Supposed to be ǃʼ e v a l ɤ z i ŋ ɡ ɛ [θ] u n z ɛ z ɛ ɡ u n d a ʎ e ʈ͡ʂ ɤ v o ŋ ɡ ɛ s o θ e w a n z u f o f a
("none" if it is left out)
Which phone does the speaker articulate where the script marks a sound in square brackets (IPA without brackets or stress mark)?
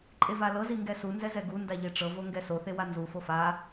s